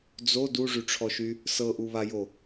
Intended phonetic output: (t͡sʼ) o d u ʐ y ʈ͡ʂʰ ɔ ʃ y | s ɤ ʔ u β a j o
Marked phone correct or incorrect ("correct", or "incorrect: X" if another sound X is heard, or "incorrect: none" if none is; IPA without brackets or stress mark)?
incorrect: d͡z